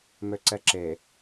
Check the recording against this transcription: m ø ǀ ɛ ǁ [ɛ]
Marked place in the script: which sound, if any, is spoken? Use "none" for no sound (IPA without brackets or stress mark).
e